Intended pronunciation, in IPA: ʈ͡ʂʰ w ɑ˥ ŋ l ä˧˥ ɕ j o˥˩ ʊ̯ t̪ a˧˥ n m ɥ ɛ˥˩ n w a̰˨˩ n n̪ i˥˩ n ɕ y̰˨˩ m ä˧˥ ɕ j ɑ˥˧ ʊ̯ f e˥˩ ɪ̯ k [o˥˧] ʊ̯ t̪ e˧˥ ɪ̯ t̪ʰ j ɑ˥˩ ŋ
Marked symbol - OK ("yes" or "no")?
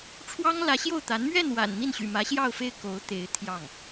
no